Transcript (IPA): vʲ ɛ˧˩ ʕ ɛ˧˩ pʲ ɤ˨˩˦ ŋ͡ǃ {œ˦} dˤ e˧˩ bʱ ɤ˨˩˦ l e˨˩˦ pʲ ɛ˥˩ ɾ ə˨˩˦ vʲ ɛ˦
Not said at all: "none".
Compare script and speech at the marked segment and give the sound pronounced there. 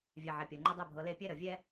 ɵ˦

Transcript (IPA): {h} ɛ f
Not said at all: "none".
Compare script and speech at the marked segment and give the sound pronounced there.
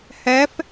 h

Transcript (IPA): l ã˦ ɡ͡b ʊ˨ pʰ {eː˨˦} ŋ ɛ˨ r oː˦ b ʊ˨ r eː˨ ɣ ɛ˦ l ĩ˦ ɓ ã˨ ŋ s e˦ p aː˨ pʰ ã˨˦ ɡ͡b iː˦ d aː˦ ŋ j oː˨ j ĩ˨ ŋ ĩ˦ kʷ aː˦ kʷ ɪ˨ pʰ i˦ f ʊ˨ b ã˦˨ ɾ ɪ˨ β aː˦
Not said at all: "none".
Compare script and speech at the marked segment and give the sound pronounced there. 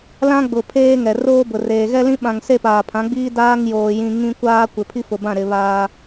eː˦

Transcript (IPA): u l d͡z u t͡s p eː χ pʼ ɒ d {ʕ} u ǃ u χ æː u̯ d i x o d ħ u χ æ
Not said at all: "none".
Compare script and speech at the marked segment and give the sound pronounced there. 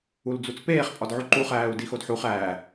ʕ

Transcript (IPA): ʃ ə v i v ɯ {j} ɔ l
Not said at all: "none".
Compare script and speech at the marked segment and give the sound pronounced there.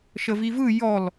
j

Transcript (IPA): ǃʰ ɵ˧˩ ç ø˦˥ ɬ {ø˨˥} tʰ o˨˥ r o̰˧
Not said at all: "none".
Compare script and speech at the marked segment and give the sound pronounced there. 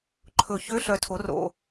œ˨˥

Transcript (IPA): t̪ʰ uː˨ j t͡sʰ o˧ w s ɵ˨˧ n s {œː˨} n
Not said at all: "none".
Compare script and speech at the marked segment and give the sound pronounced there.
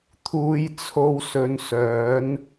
œː˨˥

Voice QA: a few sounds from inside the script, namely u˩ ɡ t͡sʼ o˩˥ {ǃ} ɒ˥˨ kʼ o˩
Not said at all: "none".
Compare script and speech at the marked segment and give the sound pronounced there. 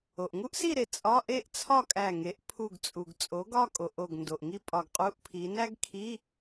ɡ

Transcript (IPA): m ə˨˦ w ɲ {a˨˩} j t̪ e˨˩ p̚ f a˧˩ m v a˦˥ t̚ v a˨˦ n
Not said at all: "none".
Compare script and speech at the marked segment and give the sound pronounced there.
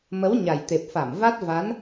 a˨˩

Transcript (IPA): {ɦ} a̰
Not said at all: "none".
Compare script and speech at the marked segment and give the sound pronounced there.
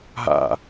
ɦ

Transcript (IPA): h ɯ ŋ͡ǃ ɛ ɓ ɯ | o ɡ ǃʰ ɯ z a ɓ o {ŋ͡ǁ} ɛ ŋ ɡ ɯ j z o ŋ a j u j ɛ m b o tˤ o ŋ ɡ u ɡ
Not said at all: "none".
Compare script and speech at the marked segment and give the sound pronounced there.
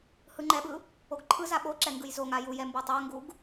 ǁ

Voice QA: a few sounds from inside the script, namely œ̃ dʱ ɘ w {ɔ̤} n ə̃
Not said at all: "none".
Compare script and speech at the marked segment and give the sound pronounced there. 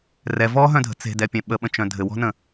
ɔ̤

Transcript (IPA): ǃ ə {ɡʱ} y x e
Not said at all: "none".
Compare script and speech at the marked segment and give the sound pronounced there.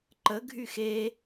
ɡʱ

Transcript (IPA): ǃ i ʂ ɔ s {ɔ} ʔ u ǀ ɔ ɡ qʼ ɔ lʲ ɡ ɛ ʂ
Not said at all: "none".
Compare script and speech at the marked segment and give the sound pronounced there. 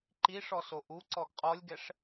o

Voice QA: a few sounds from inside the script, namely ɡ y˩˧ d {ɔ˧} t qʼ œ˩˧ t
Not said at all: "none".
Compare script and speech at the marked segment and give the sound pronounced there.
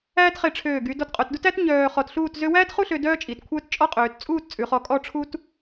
ɔ˧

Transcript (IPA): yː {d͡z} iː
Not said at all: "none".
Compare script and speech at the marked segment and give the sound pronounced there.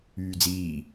d͡z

